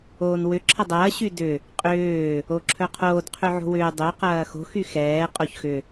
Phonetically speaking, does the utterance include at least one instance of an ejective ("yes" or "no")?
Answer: yes